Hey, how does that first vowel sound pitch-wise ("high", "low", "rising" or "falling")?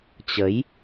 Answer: rising